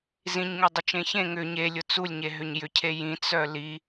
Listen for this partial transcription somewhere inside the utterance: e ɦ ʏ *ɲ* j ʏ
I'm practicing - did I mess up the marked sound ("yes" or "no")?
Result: no